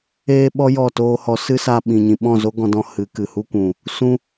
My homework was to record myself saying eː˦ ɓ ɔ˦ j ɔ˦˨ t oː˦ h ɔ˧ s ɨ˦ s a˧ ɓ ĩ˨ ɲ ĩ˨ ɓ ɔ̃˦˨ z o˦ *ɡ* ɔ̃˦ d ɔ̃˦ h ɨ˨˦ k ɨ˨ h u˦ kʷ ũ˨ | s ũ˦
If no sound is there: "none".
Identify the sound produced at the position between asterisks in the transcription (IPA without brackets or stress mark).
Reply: ɡ